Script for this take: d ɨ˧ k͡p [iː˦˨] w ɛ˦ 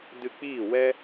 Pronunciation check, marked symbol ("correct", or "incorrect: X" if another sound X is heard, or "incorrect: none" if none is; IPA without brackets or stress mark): correct